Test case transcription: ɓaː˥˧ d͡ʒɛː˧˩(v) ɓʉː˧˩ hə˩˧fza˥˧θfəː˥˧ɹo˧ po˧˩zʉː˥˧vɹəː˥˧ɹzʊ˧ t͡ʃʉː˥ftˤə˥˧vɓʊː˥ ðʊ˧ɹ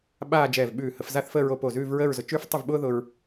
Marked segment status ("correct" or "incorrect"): correct